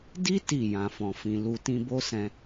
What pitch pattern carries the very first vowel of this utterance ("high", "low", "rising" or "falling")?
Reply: high